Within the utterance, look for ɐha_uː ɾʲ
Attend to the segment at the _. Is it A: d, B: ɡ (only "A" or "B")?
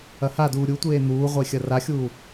A